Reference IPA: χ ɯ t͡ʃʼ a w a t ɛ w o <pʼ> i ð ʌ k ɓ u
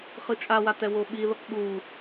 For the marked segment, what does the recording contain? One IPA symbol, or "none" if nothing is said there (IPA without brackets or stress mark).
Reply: ɓ